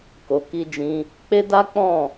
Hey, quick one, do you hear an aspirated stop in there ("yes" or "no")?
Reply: no